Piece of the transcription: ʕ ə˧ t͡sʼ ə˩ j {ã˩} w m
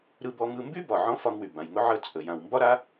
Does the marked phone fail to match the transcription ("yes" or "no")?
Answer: no